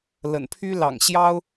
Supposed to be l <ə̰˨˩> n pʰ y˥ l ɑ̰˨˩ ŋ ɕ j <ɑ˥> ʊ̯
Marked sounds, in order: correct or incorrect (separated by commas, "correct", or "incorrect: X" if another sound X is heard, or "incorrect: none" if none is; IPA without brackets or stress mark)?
correct, correct